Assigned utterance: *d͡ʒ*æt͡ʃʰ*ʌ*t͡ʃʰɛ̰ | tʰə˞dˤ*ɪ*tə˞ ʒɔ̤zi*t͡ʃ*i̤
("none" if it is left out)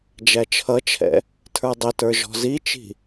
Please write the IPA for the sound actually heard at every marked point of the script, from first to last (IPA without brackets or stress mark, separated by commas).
d͡ʒ, ʌ, ɪ, t͡ʃ